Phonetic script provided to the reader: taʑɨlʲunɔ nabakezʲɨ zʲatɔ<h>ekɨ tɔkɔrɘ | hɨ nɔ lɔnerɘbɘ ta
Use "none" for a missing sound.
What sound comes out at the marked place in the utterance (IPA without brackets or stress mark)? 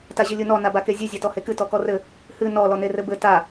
h